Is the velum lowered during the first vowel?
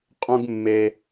yes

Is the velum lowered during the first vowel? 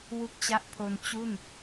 no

